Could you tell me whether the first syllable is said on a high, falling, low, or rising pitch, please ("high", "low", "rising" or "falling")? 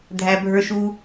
low